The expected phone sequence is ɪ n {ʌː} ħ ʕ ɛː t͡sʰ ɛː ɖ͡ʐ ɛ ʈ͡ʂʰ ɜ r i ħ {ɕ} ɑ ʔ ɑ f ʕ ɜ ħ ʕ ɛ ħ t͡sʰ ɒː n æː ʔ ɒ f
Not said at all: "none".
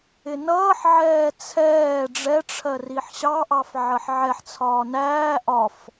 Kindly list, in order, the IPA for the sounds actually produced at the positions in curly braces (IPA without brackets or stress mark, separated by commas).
ʌː, ɕ